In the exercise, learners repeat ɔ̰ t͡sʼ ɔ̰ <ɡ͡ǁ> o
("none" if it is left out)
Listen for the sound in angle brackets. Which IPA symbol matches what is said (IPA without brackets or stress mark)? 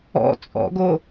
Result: ɡ